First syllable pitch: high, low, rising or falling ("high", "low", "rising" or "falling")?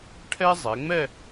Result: high